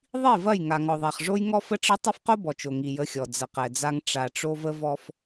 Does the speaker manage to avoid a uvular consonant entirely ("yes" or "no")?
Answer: no